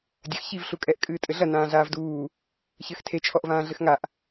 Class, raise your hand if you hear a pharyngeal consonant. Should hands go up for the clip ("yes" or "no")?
no